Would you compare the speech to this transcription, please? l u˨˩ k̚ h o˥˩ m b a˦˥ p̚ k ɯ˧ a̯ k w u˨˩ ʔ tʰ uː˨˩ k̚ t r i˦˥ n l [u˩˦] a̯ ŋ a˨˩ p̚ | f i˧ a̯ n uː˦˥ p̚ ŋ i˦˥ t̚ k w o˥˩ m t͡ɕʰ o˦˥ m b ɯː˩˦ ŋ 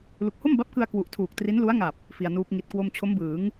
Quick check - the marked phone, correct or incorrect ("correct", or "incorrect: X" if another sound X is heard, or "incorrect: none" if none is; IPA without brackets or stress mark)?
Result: incorrect: u˦˥